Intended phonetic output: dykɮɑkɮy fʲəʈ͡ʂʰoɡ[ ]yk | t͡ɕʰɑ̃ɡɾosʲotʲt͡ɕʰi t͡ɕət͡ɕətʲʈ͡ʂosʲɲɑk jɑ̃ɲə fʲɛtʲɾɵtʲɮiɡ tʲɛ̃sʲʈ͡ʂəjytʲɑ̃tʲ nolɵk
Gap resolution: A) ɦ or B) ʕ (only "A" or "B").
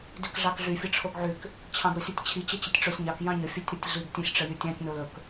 B